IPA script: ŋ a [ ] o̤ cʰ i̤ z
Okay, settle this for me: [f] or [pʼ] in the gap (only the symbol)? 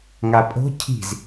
pʼ